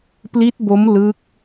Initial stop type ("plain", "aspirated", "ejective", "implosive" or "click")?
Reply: plain